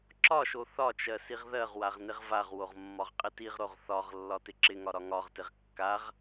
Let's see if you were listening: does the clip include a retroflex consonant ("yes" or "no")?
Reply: no